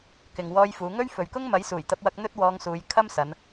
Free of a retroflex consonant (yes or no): yes